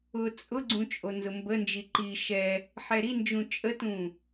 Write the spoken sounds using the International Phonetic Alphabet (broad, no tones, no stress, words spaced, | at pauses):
ʊ t͡sʼʊɡ͡ǀũ t͡ʃʼonzʊmbənd͡ʒi ǃi ʃɛ | ħɛɾind͡ʒũ t͡ʃʼətũ